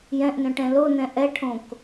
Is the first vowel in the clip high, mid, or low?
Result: mid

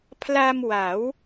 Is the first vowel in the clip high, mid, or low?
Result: low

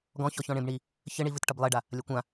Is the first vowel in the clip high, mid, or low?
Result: mid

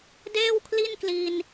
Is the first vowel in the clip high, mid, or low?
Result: mid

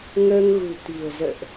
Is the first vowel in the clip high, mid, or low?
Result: mid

